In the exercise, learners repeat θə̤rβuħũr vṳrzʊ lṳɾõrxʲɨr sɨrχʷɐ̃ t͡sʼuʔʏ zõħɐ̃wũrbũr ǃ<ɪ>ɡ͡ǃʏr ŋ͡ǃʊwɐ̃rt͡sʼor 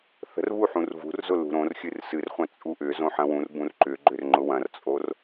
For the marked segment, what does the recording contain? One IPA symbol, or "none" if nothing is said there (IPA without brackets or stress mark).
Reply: ʏ